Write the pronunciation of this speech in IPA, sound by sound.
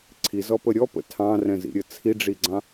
ǀʰ i z ɔ p ə ɾʲ ɔ p ə̰ tʰ ɑ̃ r ɛ̃ z ḭ ɾʲ ə t͡sʰ i ɖ͡ʐ i ɡ͡ǀ ɑ̃

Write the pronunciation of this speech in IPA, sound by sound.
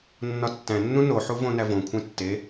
nː ɒ tː æ̃ nː ũ n o ħ u v õ n æ v õ kʷʰ ẽ tː e

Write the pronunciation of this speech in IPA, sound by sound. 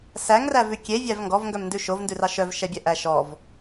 s æ ŋ r æ v ʉ kʲ e vʲ æ v ŋ ɡ ɔ v ŋ ɡ œ m n d ʉ ʃ o v n d ʉ r ɑ ʃ œ v ʃ ɛ bʲ ɛ ʔ æ ʃ ɔ v

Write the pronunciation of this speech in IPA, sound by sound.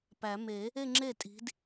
p æ˨˩˦ m e˨˩˦ | e˥˧ ŋ͡ǁ e˥˩ tʼ i̤˨˦ d

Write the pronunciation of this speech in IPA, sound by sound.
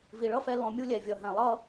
v i˨ ɭ ʌ˦ f ɛ˧ l ɔ̃˧ mʲ u˦ lʲ ɛ˨ vʲ ʌ˨ ɦ ɛ̃˨ lˠ ʌ˦

